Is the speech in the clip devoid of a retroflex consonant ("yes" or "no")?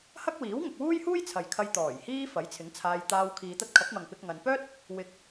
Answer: yes